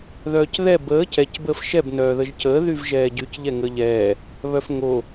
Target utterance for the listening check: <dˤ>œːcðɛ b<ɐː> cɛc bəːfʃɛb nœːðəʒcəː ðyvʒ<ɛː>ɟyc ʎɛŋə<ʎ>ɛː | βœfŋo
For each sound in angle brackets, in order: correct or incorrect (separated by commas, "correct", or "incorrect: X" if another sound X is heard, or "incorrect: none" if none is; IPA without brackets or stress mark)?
incorrect: ð, incorrect: əː, correct, correct